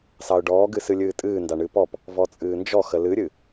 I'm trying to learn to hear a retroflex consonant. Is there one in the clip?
yes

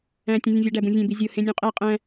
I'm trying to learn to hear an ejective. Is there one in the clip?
yes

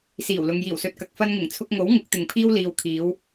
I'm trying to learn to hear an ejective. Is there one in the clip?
no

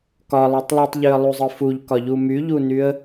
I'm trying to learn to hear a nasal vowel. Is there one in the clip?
no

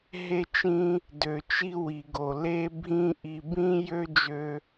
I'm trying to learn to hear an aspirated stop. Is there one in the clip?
no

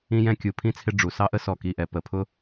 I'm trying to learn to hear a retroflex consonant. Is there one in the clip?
yes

